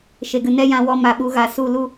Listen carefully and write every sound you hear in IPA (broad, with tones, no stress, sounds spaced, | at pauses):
ʃ e˨ ɡ ɨ˨ n ɛ˦ j ã˧ w ɔ˧ m a˨ ɓ u˧ ɣ a˨ s u˦˨ l u˦